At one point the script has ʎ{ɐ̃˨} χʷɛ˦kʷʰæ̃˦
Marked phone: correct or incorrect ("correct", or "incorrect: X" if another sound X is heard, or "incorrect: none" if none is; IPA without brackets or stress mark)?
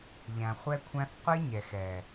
incorrect: æ̃˨